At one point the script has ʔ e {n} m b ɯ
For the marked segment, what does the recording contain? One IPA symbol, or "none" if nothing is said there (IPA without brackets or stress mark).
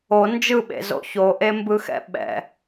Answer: none